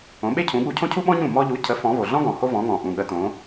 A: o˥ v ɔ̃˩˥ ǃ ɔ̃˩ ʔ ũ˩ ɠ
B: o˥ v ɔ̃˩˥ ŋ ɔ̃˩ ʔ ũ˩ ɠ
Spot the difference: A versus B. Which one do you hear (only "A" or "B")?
B